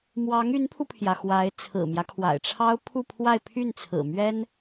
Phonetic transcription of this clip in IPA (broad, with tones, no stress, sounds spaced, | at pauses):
m w ɑ˧˥ ŋ y˧˥ n pʰ u˧ pʰ j ä˩ x w a˧˥ ɪ̯ t͡sʰ ɹ̩˨˩ m j ä˦ kʰ w a̰˨˩ ɪ̯ ʈ͡ʂʰ ɑ˥ ʊ̯ pʰ u˥˧ pʰ w a˥˧ ɪ̯ pʰ y˥˩ n t͡sʰ ɹ̩˨˩ m ɥ ɛ˥ n